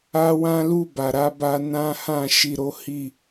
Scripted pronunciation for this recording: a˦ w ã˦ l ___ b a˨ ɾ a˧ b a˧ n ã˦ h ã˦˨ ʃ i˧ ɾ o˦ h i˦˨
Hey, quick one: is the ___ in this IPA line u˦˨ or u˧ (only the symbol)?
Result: u˦˨